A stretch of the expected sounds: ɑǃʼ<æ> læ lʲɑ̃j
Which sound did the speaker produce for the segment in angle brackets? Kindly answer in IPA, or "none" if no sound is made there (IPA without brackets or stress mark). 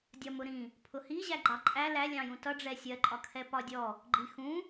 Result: æ